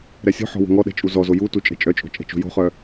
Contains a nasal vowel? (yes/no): no